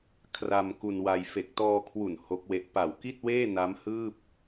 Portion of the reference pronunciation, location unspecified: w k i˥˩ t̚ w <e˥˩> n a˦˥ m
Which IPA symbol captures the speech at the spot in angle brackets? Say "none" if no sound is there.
eː˥˩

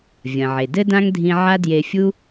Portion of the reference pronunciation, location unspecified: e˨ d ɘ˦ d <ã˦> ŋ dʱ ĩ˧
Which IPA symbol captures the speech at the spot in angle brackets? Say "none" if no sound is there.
ã˦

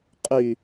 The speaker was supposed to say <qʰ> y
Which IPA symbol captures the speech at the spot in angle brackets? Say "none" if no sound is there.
qʼ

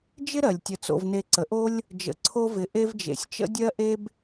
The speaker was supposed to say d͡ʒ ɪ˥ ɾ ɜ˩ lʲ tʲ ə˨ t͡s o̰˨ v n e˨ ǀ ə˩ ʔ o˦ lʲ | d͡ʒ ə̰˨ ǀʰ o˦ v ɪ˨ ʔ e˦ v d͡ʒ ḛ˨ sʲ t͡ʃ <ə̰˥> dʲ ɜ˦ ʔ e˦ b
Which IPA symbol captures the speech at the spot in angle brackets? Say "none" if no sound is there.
ə̰˥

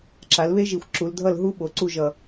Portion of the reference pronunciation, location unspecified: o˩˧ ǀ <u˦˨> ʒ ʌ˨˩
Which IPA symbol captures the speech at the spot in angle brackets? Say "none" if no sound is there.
u˦˨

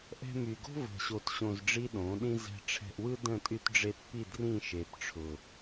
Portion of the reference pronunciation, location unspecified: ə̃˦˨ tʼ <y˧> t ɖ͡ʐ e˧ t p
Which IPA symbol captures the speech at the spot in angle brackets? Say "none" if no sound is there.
y˧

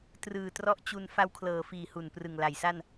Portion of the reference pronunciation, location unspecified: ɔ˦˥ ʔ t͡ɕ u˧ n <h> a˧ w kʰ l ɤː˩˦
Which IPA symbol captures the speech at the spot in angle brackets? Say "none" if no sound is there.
f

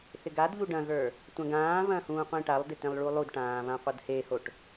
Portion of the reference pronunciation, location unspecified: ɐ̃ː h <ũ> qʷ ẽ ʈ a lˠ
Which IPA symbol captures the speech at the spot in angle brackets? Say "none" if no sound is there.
ũː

